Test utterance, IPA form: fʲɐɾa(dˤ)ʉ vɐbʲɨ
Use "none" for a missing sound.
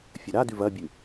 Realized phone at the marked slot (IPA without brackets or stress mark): d